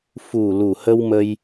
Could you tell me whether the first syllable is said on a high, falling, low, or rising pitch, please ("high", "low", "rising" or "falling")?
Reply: low